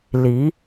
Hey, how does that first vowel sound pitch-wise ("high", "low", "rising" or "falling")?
rising